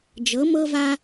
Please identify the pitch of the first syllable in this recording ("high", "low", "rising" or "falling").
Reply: rising